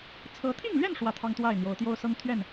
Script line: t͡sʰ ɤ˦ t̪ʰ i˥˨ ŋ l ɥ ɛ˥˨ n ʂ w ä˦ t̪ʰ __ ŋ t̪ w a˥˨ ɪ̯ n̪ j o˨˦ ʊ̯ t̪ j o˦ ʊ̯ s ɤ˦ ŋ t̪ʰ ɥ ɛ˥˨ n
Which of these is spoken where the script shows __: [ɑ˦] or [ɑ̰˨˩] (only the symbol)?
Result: ɑ˦